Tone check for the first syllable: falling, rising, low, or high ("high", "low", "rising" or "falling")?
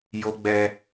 high